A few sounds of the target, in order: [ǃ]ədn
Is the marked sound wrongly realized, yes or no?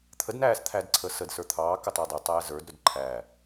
yes